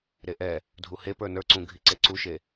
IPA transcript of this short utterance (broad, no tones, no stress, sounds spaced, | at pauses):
ɾ e ʔ ɛ | dʱ u h e p ə˞ n ə˞ ǀ ũ ɡʱ i ǀ e ǀ u ʃ e